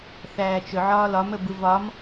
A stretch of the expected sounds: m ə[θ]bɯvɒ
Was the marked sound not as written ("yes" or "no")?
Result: yes